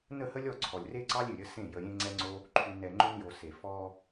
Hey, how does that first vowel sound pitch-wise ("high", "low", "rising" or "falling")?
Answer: falling